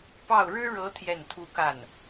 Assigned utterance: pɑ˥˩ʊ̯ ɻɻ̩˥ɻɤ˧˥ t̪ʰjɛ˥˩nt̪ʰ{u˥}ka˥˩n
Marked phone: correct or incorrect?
correct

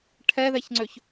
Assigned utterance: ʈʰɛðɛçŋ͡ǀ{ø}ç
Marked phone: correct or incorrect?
correct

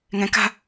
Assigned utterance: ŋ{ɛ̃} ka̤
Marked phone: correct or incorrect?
correct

